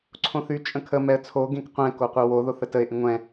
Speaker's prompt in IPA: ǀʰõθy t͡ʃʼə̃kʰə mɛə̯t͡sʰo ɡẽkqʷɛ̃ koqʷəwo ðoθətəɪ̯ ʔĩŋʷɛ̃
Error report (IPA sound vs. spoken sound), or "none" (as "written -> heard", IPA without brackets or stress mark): none